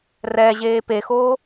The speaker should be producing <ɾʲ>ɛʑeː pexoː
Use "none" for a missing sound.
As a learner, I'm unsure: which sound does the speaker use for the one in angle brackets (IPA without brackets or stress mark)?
r